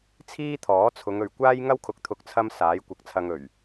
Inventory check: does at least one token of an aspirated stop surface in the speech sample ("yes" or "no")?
yes